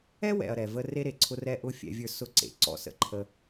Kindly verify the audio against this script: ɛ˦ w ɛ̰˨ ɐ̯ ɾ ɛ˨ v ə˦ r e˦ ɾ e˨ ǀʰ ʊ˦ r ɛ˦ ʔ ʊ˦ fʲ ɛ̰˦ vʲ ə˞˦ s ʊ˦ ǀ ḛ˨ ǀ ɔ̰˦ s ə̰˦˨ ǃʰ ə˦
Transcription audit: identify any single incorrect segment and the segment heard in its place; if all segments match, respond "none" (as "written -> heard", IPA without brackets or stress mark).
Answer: none